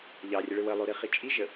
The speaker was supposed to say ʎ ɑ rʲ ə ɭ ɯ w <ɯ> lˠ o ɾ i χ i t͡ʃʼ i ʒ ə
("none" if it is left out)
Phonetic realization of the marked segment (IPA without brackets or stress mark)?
ə